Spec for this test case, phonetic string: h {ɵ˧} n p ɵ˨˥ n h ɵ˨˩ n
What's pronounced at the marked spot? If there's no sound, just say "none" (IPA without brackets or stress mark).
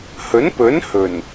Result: ɵ˨˥